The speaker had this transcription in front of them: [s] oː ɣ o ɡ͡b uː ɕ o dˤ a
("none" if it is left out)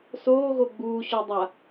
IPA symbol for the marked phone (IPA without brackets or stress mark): s